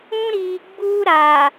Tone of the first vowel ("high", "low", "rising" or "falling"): high